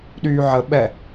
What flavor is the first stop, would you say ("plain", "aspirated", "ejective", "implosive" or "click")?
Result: implosive